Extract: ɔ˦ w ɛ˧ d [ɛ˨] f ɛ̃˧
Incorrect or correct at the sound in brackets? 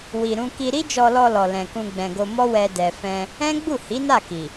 correct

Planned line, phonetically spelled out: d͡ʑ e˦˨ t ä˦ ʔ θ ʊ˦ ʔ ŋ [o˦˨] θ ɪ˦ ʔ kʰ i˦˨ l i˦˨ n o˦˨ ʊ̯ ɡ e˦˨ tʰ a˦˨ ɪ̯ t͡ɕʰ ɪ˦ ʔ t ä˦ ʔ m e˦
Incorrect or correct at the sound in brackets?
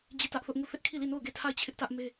incorrect: u˦˨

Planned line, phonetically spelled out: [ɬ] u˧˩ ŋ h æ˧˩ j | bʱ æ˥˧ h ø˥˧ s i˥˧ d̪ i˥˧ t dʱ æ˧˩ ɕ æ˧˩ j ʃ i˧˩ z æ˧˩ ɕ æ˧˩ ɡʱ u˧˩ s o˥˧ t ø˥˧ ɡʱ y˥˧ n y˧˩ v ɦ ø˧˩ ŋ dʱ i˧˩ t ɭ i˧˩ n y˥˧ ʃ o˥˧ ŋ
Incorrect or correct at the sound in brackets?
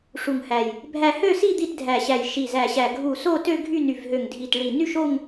incorrect: ʂ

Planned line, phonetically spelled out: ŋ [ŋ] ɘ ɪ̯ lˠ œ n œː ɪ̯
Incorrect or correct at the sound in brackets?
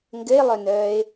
incorrect: ɡ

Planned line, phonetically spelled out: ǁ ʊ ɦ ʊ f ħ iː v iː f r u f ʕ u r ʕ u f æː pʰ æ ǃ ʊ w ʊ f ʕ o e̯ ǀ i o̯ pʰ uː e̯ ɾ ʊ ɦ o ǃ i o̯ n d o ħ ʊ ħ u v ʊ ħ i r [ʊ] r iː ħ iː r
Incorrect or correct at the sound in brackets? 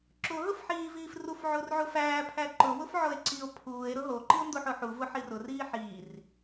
correct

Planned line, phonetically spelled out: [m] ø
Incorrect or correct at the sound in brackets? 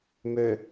correct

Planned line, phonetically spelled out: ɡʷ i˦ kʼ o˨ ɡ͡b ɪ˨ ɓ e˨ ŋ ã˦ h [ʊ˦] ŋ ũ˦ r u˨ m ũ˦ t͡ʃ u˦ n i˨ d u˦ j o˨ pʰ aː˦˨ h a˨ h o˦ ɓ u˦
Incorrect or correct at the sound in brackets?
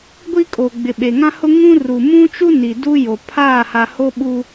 correct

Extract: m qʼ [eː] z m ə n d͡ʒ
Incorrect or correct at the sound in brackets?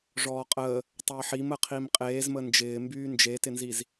correct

